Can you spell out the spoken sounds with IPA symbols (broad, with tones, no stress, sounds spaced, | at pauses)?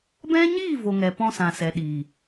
b ɛ̃˦ ɲ iː˦˨ v o˨ ŋ ɛ˨ p ɔ̃˧ s ã˨ s ɛ˨ ɗ iː˨